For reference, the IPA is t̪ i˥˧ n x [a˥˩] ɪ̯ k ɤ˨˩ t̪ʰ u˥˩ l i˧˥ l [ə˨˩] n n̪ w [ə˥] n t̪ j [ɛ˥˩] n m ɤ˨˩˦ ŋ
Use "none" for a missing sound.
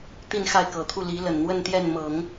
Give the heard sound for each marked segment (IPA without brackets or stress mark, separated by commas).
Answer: a˥˩, ə˨˩, ə˥˧, ɛ˥˩